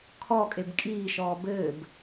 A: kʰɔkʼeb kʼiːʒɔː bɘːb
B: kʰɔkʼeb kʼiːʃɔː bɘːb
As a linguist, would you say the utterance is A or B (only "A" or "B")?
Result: B